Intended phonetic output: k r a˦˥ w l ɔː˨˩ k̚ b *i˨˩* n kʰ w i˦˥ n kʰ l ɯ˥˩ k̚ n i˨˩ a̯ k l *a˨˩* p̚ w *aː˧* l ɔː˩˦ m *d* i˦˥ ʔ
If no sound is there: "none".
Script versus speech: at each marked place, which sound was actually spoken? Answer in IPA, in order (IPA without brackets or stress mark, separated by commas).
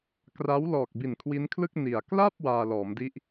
i˨˩, a˥˩, aː˧, d